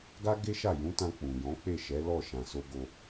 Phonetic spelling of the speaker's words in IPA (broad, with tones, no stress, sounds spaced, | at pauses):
ɡ a˦ ɡ e˦ ʃ a˦˨ j ũ˨˦ t ã˧ k͡p ũ˨ j ɔ̃˨˦ k͡p e˦˨ ʃ ɛ˨˦ l ɔ˦˨ ʃ ã˨ s o˧ ɡ o˧